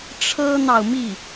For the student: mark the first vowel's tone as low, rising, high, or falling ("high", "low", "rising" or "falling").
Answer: high